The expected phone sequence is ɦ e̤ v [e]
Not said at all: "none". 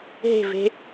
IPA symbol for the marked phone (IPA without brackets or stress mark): e̤